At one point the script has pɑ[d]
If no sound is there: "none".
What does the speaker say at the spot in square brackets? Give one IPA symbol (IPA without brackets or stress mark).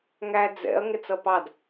d